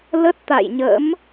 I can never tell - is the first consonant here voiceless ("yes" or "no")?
no